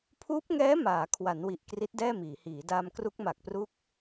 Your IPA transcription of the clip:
pʰ uː˦˥ p̚ ŋ ɛː˦˥ m aː˩˦ kʰ w a˩˦ n w i˨˩ ʔ k r i˦˥ t̚ d ɛː˥˩ m iː˩˦ h iː˩˦ d aː˧ m k r u˦˥ k̚ m a˨˩ k̚ p r u˦˥ k̚

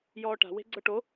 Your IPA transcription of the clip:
j ɔː ʈ a̤ w e̤ ɡ͡ǀ ɤ ʈ o

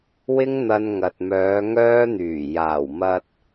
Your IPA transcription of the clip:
w ɪ˥ ŋ n̪ ɐ˧ n ŋ ɐ˨ t̚ m œː˨˧ ŋ œː˥ n̪ yː˨˩ j aː˨˩ w m ɐ˧ t̚

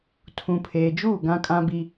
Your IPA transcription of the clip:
tʰ ũ˨ pʰ eː˨ d͡ʒ uː˦˨ ɡ ã˦ kʼ ã˦ b i˦

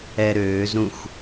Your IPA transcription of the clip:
ɛ ɾ øː z ɾ ũ x

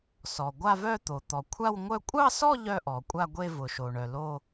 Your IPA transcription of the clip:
s ɔ˩ ɡʷ a˥˧ v œ˥˧ t̪ o˩ t̪ ɔ˩ kʷʰ a˥˧ w ŋʷ œ˥˧ kʷʼ ɑ˥˧ s ɔ˥˧ ʎ œ˥˧ ʔ ɔ˩ kʷʼ a˥˧ ɡʷ e˥˧ v ʊ˩ ʃ o˩ ɳ œ˩ l o˥˧

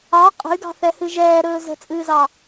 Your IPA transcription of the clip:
ɑ qʼ ə̤ y̯ ɡ ɑ̤ θ ɛ h ɨ ʒ ɛː ɾ ɵː z ə̤ t͡sʼ ɨː z ɑ

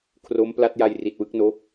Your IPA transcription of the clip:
kʰ r o˦˥ m p l a˦˥ t̚ j a˧ j r i˨˩ t̚ w ɯ˥˩ k̚ n oː˦˥ k̚

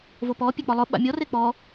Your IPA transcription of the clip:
v o p ɔ pʲ e k͡p ɔ lˠ ʊ ɓ a̰ mʲ ɔ r e k͡p ɔ

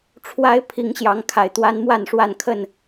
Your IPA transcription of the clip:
ʈ͡ʂʰ w a˦ ɪ̯ pʰ i˨˦ ŋ ɕ j ɑ˨˦ ŋ kʰ a˨˩ ɪ̯ t̪ w a˦ n m w a˥˨ n ʂ w a˥˨ n kʰ ə˥˨ n

